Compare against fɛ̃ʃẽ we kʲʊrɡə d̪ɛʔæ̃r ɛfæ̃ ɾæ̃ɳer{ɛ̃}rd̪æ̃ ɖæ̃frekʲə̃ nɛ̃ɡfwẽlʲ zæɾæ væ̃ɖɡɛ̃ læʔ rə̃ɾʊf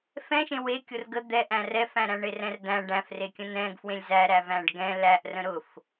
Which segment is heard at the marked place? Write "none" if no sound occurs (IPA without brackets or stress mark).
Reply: ɛ̃